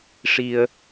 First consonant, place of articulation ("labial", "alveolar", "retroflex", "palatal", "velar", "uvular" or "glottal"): retroflex